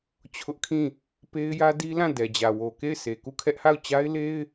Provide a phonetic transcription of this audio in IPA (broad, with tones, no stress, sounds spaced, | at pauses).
t͡ɕʰ ʊ˦ ʔ kʰ ĩ˦˨ | p e˦ ɪ̯ j ä˦ d i˦ l ã˦˨ d ɛ˨ d͡ʑ ä˨ w o˨ k e˦˨ ɪ̯ sʰ e˨ k u˦˨ kʰ ɛ˦ ʔ h a˦˨ ʊ̯ t͡ɕ a˦ ɪ̯ l e˦ ɪ̯